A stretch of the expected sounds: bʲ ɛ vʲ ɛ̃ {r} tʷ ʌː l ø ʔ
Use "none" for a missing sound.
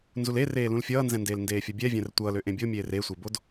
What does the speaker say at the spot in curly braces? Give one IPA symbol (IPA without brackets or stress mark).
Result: r